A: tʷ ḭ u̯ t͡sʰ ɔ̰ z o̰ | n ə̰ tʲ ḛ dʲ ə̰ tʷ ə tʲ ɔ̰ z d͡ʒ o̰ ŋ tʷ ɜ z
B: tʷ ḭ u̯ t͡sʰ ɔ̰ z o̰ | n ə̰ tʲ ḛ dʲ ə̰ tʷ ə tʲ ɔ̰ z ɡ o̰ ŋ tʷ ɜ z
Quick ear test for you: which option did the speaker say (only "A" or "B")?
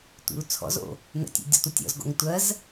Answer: B